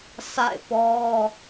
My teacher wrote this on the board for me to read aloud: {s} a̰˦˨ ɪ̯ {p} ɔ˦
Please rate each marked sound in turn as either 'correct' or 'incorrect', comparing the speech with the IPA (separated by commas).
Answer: correct, correct